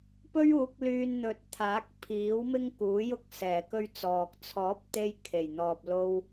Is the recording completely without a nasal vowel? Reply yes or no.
yes